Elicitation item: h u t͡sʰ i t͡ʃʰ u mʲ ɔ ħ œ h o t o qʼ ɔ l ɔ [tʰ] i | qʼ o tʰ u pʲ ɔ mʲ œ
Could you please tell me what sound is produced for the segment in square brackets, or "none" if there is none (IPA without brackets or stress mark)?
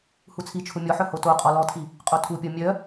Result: tʰ